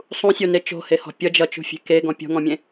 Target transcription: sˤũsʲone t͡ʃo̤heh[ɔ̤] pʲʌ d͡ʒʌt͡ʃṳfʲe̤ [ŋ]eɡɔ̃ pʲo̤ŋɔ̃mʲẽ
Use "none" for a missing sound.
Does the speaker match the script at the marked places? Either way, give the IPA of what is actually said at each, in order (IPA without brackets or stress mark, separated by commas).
ɔ̤, k